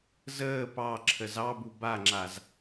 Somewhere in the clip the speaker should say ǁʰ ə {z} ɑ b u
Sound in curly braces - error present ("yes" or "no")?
no